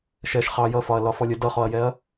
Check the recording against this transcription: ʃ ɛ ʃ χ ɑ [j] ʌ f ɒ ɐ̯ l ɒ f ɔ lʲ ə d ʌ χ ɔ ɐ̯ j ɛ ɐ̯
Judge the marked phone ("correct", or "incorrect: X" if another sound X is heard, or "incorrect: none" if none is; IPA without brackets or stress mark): correct